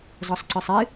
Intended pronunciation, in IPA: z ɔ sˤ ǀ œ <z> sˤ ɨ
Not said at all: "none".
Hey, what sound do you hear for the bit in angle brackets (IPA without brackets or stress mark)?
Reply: none